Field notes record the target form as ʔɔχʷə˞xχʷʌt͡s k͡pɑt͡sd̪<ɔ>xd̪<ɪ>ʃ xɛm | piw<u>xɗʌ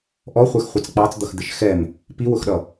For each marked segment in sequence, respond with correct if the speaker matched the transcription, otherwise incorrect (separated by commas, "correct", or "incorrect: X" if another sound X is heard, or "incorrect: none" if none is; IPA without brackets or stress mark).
incorrect: ʌ, correct, incorrect: ʊ